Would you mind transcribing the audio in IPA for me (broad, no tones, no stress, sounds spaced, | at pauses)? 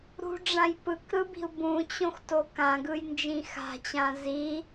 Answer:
ɾ ṳ ɖ͡ʐ ã j p ɯ k ɾ ɯ b i̤ u̯ b ũ t͡ɕ õ x t o k ã ɡ ɯ j n d͡ʒ ĩ x a̤ t͡ɕ ã z i